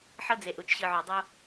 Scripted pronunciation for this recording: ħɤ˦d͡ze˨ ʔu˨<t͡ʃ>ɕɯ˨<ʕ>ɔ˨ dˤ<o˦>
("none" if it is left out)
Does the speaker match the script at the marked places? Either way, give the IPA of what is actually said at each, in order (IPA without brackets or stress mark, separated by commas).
t͡ʃ, ʕ, o˦